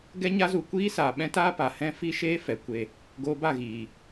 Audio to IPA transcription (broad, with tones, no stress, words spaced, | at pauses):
ɡɛ˦ɲa˦zu˧ kʷiː˦saː˨ ɓɛ̃˦taː˦pa˨ hɛ̃˦fi˦ʃeː˦ fɛ˨˦kʷe˧ | ɡoː˧ba˦˨ɣiː˨